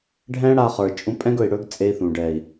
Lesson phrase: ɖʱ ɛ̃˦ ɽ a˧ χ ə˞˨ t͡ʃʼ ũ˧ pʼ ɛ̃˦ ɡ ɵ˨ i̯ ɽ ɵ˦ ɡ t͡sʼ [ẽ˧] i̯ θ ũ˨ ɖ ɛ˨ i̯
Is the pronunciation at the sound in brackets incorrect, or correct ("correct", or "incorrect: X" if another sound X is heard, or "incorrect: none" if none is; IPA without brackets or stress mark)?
incorrect: e˧